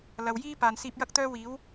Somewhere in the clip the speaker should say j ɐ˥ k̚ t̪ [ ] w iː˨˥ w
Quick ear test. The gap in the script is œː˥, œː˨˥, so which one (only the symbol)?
œː˥